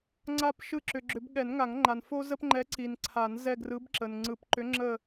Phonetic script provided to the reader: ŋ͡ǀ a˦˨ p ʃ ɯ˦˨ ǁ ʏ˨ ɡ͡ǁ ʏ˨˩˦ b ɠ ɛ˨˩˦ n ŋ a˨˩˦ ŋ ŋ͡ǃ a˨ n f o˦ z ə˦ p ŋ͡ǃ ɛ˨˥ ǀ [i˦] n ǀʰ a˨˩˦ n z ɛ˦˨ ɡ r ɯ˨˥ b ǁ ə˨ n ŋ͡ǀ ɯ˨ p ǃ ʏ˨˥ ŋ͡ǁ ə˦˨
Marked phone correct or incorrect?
incorrect